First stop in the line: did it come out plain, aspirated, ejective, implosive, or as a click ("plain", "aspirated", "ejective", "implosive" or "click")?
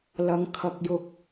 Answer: aspirated